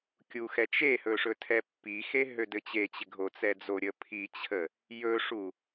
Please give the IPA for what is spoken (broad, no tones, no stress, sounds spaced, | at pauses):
kʲ u x ɛ t͡ʃ e h ɵ ʂ ɵ tʰ ɛ pː i x e ɦ ø d ɘ t͡ɕ e t͡ɕ ɪ ɡʱ o t͡s ɛ d͡z o ɾʲ ə pʰ i t͡ɕʰ ə | j ɵ ʂ u